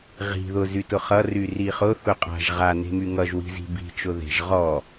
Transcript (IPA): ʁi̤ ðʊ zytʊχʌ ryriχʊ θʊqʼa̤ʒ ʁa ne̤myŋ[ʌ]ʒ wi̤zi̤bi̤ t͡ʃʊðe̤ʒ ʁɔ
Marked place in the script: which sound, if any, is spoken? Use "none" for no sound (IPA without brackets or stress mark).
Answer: ʌ